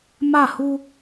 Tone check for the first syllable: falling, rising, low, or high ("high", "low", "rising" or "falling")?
falling